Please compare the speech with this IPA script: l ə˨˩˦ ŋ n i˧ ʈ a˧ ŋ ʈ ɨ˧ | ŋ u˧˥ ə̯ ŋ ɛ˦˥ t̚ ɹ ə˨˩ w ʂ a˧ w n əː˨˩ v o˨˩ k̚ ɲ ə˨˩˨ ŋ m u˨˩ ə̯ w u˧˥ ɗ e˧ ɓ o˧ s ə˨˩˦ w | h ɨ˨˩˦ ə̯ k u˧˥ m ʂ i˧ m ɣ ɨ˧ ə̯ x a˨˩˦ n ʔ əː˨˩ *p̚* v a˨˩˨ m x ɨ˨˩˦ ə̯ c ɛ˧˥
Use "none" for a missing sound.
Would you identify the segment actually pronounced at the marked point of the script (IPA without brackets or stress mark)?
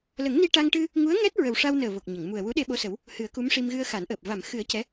p̚